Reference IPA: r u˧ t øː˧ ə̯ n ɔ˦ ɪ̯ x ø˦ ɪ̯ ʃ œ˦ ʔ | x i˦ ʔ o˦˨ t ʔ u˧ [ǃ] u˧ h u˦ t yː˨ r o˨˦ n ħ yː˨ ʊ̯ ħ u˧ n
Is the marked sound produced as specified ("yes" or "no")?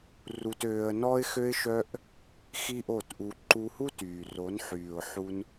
yes